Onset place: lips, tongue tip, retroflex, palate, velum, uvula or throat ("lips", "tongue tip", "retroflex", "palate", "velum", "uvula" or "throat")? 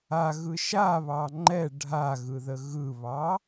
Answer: velum